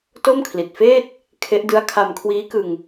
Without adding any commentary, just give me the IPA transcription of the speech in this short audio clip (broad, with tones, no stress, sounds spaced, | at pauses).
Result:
t o˥˩ m kʰ l i˨˩ t̚ f eː˥˩ t̚ | kʰ e˦˥ ʔ d ɯ˦˥ a̯ kʰ a˧ m kʰ w iː˦˥ k ɯ˧ ŋ